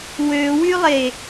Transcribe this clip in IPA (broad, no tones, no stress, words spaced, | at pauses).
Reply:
wøwylˠe